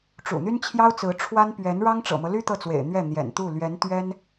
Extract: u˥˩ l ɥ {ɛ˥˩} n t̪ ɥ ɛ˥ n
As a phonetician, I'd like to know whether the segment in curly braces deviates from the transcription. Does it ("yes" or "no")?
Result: yes